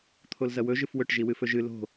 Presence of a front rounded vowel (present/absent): absent